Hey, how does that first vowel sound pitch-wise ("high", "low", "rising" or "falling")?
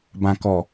low